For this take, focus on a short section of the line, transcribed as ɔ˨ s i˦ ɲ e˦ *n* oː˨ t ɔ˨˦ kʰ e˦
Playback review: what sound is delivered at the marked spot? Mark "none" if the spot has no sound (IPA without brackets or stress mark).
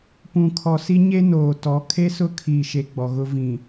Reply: n